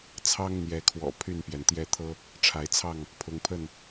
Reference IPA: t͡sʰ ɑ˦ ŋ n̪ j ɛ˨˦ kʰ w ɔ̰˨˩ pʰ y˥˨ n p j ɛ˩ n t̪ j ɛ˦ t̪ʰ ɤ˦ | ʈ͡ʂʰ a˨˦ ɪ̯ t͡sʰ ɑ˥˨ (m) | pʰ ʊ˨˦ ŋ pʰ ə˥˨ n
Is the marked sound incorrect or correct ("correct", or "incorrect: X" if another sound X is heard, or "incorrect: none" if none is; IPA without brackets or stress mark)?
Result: incorrect: ŋ